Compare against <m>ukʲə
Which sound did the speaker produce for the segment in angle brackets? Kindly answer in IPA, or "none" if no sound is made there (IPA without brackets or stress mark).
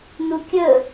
n